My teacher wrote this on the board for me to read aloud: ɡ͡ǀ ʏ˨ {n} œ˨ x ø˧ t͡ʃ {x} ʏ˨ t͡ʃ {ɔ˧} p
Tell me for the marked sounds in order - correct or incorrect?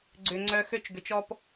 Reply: incorrect, incorrect, correct

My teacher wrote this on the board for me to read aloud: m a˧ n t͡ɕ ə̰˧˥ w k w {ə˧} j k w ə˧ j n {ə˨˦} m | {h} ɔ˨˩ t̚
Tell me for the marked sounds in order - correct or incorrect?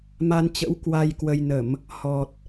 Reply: incorrect, incorrect, correct

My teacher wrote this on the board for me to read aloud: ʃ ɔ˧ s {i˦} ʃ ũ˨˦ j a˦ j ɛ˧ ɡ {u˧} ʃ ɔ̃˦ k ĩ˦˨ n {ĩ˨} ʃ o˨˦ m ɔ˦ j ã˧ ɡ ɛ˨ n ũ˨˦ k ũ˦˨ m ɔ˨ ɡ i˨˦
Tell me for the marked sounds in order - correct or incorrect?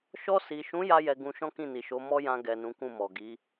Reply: incorrect, incorrect, incorrect

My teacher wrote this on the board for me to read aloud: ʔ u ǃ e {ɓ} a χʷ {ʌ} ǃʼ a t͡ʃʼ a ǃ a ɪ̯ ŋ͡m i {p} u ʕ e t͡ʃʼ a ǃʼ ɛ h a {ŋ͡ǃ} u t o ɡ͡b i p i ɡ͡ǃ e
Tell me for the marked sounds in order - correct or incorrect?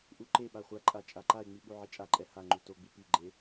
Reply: correct, incorrect, incorrect, correct

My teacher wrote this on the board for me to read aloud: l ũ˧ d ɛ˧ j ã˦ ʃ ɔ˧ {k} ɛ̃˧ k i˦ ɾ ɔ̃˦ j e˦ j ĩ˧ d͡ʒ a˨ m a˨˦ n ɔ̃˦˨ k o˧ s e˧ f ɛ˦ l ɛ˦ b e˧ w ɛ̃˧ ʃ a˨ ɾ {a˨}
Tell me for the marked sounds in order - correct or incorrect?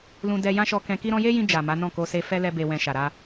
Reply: correct, incorrect

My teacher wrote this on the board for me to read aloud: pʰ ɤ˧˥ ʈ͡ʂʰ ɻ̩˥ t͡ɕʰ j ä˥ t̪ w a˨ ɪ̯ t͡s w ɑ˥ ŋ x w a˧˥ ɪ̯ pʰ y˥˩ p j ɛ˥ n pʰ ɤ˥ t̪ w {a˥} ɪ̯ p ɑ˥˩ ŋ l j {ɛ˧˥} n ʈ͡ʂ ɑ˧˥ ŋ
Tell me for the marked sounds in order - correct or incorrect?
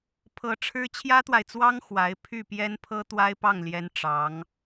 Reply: correct, correct

